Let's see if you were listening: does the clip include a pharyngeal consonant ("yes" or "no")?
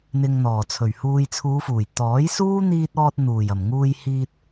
no